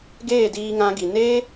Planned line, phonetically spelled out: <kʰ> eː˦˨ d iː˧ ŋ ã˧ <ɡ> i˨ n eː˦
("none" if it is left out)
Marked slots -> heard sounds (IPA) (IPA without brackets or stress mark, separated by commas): ɡ, ɡ